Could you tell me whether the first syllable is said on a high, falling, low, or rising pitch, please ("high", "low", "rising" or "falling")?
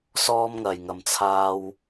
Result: high